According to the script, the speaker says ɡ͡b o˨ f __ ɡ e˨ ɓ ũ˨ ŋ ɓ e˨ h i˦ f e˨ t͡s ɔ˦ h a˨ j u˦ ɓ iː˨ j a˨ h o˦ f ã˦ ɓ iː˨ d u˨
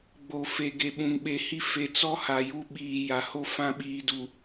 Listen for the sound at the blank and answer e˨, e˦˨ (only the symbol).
e˨